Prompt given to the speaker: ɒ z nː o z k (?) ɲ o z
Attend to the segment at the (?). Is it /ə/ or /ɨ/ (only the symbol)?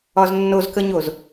ə